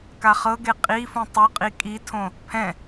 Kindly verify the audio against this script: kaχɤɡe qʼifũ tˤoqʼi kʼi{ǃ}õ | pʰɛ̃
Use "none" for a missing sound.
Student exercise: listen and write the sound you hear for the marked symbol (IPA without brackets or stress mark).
tʰ